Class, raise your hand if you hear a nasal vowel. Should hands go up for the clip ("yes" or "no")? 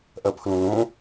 yes